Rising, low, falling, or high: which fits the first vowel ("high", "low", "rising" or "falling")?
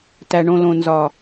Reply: low